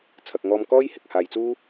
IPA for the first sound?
t͡sʰ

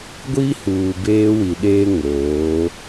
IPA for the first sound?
ɡʷ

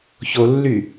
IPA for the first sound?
ç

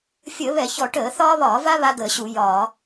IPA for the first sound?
fʲ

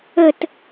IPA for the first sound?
ə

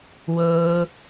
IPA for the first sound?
w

